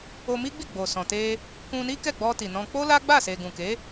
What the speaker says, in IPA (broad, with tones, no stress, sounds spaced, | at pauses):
o˧ m i˦ ɡ͡b i˦˨ ɡ͡b o˨ s ɔ̃˨ t e˧ | k ũ˧ n i˦ k ɛ˦˨ ɡ͡b ɔ˧ t i˨ n ɔ̃˧ k͡p o˦ l a˦ ɡ͡b a˦˨ s e˨ ɡ ũ˨ k e˨˦